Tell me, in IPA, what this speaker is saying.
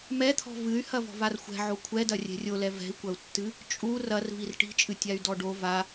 mɛt̪ʰɔ̤ vɨy̯hɐ vɔ̤varxʷɛ̤ ʕokʷʰɛdɐ rʲɛ̤rʲolɛ vɛ̤i̯kʷɐu̯tːɨ | t͡ʃʼu rɐrvir ʈi̤t͡ʃʼɨ tʲay̯dɔɖo va

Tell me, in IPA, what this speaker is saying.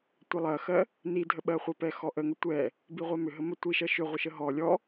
tʷɛlˠɜxɜ | nidʱəɓɜχʷɜ pɛxɔʔəŋʏ tʷɛ | biʁʷɛmʏ ɦəmətʷiʃɜ ʃʏ ʁʷəʃəɦɔ lʲɔ

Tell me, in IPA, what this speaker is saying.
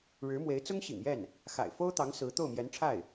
ɻɻ̩˧˥mwe˧˥ɪ̯ t͡sʊ˥ŋ ɕḭ˨˩ŋjɛ˥˩n | xa̰˨˩ɪ̯fo˥ʊ̯t̪ɑ˧˥ŋ sɹ̩˧˥ t̪o˥˩ʊ̯mjɛ˧˥nʈ͡ʂʰa˥˩ɪ̯

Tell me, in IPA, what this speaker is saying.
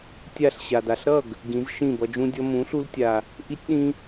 tʲa˦˨ɬɕa˨d a˨ɬɾʌ˦˨ɡ | ɡĩ˨˦zʃĩ˦˨bʌ˧d͡ʒũ˦ dʲʌ˧mũ˨˦ɬu˧ltʲa˨ | ʔi˦tʲɗĩ˦

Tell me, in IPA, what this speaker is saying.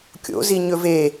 kʲo̰zi ɲɵve

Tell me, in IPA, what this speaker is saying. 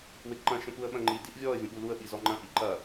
wɪɡǃɐ̃ ʃə̃puə̯ɓɐ̃ŋ͡ǃi diʔvʲɔə̯ vʲə̃ɓuluə̯ ɓizɔŋ͡ǃɐ̃ ʔiǃɐ

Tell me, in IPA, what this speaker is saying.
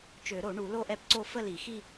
t͡ʃø˨˩˦ɾo˨˩˦ɳu˨˩˦ lo˥˧ʔɛ˥˧pǀo˥˧ fə˥˧li˨˩˦xi˥˧

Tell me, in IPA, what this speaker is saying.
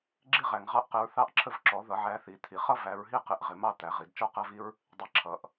ɡ͡ǁi˦ʁæ˨ŋʁɑ˦ʔqɪ˨˦ɹ θɑ˦˨ʔ ǁʰə˦˨vǁɔ˨˩˦ðʌ˨˩˦ʕæ˨˦ θi˨˩˦t̪ʰi˨˩˦ χʌ˦ væ˨˦ɹɦi˦qɪ˨ʔ ʁɪ˨mɑ˦ t̪æ˨˦ʁi˨˩˦d t͡ʃɔ˦qæ˦vi˦ɹ | dˤi˨˩˦ǁʰʌ˨˩˦ʔ

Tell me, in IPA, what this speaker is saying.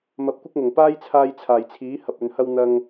mɐ˧p̚kʷɪ˥k̚ŋʊ˨˩ŋ paː˥jt͡sʰaː˧j t͡sʰaː˨˩jt͡sʰiː˨˥ hɐ˨p̚ɵ˨nhɐ˧w n̪ɐ˧ŋ

